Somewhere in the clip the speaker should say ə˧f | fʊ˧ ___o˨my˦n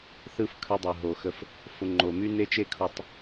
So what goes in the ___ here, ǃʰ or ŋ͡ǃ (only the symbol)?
ŋ͡ǃ